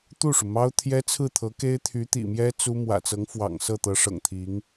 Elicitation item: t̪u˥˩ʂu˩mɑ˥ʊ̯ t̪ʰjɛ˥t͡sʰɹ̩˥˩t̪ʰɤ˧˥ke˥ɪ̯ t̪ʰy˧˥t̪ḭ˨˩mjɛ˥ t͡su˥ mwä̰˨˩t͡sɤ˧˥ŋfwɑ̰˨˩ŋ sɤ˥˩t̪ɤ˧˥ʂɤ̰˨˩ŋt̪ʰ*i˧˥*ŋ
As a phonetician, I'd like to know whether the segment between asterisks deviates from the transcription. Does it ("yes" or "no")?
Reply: no